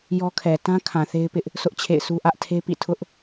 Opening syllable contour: high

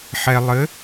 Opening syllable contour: low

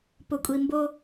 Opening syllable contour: low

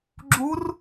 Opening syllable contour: rising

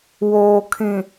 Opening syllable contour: low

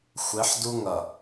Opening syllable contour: rising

